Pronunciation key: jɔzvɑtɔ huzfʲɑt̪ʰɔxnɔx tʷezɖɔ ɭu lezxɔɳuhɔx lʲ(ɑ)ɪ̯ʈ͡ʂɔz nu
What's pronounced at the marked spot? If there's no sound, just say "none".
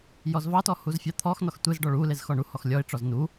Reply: ɔ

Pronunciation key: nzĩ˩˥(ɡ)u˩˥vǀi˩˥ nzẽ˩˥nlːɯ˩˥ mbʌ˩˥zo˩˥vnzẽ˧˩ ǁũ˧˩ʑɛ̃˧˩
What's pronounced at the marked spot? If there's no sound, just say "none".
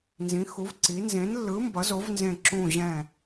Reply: x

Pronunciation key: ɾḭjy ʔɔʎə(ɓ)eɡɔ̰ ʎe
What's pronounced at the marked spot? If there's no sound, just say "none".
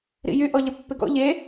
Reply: pː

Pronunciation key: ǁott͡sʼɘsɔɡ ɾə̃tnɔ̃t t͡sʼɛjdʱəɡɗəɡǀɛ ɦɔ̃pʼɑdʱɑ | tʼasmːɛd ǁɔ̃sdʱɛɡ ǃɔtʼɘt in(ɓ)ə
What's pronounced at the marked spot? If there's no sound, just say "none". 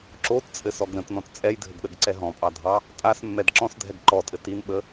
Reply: ɓ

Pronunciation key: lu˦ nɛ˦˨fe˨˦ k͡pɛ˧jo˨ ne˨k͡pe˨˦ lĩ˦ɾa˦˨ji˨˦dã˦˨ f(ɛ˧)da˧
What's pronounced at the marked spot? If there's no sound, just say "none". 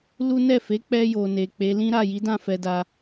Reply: ɛ˧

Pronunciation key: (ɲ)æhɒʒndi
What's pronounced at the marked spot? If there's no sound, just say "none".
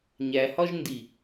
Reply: ɲ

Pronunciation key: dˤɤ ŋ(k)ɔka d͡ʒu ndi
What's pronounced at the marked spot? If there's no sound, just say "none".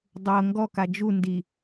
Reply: ɡ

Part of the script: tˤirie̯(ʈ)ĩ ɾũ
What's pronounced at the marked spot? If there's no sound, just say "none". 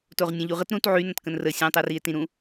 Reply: t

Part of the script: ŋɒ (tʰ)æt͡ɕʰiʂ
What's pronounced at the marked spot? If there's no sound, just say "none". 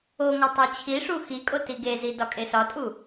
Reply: tˤ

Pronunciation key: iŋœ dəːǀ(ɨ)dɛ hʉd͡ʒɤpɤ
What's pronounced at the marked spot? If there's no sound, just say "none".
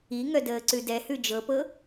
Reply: ʉ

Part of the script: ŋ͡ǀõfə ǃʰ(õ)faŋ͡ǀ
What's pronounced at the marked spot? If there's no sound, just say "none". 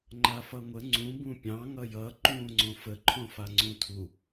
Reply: õ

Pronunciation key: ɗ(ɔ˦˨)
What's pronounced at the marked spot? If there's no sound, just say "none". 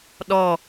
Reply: ɔ˦˨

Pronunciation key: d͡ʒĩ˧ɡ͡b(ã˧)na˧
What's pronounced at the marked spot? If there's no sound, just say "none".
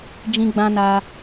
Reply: ã˧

